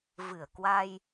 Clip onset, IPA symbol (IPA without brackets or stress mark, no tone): v